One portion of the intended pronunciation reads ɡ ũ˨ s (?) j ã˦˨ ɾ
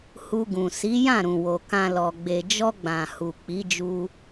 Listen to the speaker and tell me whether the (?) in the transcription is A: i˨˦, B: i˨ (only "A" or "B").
A